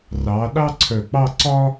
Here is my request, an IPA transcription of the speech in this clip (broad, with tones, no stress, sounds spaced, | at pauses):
r ɑ˩˧ ɗ ɑ˥ ǀʰ œ˧˩ k͡p ɑ˥˧ ǀ ɒ˥